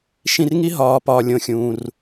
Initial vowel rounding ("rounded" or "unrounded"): unrounded